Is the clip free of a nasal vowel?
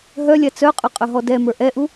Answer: yes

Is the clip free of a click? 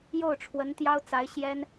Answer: yes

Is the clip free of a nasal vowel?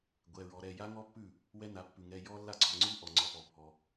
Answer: yes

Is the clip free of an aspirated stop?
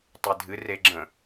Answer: yes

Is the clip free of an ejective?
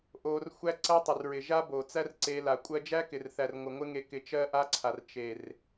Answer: no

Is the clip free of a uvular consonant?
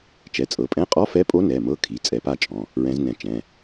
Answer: no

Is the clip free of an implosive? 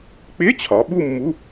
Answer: no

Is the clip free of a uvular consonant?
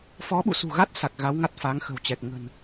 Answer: yes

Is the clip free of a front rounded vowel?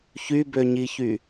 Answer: no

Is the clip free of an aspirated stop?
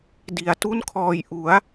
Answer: no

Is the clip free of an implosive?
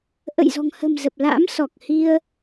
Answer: yes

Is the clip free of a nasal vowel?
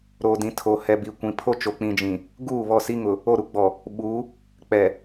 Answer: no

